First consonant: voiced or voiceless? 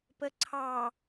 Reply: voiceless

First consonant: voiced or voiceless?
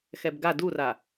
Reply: voiceless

